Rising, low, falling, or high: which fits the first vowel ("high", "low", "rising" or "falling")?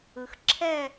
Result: low